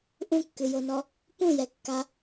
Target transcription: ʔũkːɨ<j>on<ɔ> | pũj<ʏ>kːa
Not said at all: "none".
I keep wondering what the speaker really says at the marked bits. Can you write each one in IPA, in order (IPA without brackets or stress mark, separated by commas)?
j, ɔ, ɛ